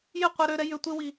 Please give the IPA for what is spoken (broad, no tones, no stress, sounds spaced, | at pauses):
j ɪ qʷ e ɾ ø ɾ ɛ j ʏ tʷ ɪ w i